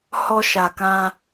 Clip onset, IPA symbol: h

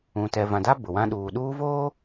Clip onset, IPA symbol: ũ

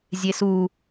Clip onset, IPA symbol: zʲ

